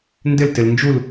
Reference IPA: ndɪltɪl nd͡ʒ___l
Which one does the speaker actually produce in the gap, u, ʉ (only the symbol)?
u